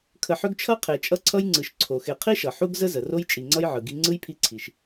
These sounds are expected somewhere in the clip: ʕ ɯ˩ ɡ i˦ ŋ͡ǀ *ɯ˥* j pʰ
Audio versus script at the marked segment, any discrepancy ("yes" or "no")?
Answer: no